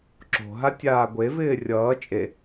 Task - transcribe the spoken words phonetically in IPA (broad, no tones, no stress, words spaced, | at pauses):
ǁo̤ɦa tʲaːɡʷevɪː rʲʌː t͡ʃʼe